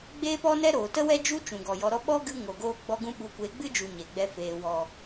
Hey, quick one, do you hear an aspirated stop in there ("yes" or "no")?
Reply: no